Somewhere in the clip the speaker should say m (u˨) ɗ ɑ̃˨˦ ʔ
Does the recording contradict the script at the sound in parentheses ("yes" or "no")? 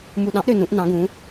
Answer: no